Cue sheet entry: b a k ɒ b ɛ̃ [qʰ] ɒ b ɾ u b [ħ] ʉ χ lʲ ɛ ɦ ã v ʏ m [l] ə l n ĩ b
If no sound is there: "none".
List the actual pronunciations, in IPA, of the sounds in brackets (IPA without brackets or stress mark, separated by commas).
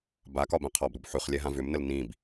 qʰ, ħ, n